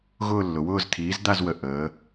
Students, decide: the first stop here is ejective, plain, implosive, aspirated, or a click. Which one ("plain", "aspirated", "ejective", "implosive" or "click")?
aspirated